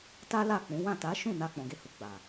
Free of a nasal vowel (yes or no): no